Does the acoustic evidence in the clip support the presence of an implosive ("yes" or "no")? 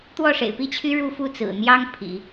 no